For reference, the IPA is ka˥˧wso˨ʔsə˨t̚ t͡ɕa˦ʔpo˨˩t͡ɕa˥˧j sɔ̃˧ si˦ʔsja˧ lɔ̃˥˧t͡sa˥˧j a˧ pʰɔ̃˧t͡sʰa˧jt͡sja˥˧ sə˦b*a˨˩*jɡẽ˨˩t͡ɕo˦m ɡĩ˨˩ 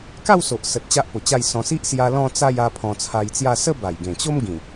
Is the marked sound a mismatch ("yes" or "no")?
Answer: no